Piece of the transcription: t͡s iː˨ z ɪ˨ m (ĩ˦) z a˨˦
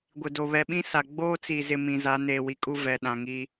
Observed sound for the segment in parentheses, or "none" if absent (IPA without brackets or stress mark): ĩ˨